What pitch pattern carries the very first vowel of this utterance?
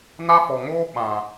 high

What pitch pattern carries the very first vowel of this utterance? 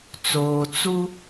low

